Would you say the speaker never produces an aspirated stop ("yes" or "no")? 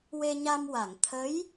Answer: no